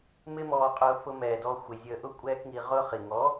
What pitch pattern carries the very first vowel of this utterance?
high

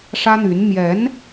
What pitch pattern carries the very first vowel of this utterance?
high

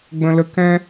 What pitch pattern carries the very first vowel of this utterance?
high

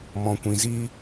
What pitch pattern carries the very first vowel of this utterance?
low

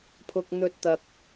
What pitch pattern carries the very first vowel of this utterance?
low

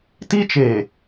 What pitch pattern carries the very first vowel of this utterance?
high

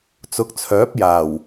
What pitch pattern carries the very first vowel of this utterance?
rising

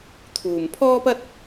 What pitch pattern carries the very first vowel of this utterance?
low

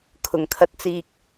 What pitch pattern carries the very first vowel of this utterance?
low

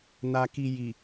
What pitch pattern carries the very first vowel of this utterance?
low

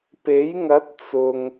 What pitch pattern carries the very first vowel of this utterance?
rising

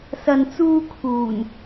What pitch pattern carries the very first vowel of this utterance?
low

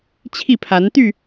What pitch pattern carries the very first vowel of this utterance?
falling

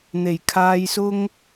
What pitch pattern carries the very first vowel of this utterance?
low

